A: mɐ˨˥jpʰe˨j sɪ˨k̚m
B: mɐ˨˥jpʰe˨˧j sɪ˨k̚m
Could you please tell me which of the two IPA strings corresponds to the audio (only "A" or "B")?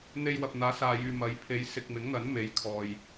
B